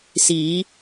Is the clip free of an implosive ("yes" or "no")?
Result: yes